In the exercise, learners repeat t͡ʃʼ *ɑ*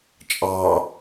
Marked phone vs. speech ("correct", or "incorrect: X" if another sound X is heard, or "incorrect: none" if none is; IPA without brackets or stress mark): correct